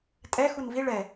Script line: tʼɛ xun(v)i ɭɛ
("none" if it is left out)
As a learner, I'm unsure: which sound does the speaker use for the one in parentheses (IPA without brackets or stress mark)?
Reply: v